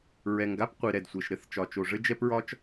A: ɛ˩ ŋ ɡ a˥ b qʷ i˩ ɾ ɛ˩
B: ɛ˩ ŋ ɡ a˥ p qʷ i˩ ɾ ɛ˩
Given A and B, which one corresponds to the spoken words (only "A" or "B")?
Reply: B